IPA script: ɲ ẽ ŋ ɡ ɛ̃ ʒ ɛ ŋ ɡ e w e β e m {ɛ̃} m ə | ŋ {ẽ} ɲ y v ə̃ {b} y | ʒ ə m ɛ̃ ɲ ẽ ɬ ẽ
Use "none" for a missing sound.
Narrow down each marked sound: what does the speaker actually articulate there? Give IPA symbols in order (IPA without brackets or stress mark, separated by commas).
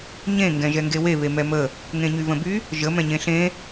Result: ɛ, ẽ, b